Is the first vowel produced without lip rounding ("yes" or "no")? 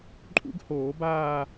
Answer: no